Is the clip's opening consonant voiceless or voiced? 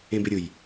voiced